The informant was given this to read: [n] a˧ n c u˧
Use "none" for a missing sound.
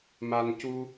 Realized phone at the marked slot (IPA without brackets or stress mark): m